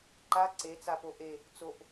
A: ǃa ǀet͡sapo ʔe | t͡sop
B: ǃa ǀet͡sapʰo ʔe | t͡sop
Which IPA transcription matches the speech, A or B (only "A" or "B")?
A